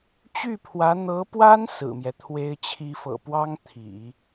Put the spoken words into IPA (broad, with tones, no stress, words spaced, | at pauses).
t͡ɕy˥˩pʰwä˧˥ n̪ɤ˧˥pwa˥n sɹ̩˨˩mjɛ˦t̪ʰwe˥ɪ̯t͡ɕʰi˥ fɤ̰˨˩pwɑ˥ŋ t̪ʰḭ˨˩˦